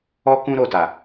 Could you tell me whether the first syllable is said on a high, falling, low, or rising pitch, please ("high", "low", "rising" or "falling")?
high